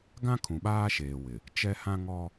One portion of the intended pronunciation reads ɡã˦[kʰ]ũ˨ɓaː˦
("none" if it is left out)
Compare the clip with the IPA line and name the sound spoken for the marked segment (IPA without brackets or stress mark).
kʰ